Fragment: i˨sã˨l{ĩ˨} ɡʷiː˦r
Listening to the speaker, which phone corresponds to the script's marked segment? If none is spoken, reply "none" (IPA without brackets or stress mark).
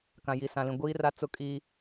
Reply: ĩ˨